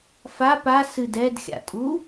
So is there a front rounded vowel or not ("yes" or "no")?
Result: no